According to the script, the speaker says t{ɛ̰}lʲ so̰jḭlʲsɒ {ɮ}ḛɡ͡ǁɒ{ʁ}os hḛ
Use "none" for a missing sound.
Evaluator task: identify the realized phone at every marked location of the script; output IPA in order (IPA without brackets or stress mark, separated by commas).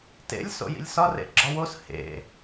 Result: ḛ, r, w